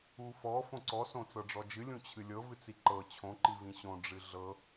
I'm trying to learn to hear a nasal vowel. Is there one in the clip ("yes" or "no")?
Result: yes